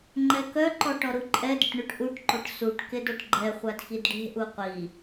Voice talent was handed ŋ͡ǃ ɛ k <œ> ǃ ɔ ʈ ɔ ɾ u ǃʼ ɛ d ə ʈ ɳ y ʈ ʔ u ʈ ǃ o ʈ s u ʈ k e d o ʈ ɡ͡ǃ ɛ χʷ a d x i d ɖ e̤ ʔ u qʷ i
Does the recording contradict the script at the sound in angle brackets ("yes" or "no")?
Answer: no